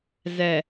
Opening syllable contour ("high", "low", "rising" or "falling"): low